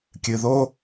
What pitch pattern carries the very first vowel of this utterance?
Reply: low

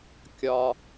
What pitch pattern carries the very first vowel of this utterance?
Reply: low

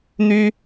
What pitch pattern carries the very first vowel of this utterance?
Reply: high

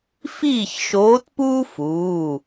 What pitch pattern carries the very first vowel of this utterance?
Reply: falling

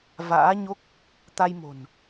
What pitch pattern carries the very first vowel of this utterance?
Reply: rising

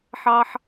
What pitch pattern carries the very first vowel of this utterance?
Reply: low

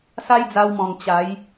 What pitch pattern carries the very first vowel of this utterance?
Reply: high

